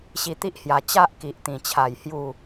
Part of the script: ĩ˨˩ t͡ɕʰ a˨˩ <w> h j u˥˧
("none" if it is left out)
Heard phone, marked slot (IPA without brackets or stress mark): j